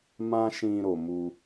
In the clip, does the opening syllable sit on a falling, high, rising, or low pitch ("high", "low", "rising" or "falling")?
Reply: high